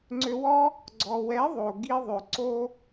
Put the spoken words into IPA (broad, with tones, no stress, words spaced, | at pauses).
ŋ͡ǀø˧wɔ˦ | ɡ͡ǀɔ˨wɛ˨˦ ðˤo˨ ɡi˧ðˤø˨ǀo˦